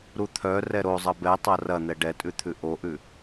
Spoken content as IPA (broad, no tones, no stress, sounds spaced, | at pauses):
ɾ u t̪ʰ œ r ɛ ɾ o zˤ ɐ b ɛ tˤ ɐ r ɐ n̪ ɛ ɖ ɛ tʼ ʉ t̪ʰ ʉ ʔ o ʔ ʉ